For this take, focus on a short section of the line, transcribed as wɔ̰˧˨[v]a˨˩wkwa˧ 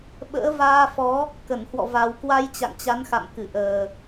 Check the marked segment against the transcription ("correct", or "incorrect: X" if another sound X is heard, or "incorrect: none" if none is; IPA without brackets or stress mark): correct